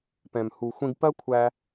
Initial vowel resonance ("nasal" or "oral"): nasal